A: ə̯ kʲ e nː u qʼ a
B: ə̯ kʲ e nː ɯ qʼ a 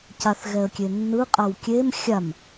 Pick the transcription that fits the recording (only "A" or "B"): B